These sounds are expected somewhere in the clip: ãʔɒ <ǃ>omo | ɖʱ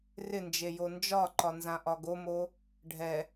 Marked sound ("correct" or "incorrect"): incorrect